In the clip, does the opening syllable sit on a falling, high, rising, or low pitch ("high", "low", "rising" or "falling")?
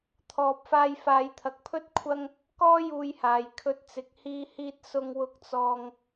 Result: low